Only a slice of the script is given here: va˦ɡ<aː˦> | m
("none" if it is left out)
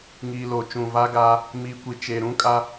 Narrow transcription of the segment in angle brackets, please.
aː˦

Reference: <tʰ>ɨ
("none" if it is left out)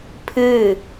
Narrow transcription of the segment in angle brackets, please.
pʰ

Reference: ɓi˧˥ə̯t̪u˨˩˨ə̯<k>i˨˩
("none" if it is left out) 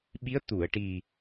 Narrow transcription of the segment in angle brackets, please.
ʈ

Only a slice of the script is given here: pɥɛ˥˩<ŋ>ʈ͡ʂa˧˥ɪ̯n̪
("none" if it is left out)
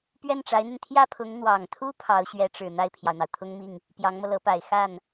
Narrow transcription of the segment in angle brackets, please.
n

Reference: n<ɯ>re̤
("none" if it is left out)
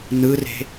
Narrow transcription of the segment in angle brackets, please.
ɯ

